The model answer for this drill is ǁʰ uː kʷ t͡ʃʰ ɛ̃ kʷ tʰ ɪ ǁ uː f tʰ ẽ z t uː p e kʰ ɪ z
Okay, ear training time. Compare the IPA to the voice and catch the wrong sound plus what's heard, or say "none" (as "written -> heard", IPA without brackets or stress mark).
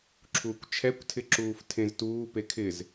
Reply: ɛ̃ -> ɛ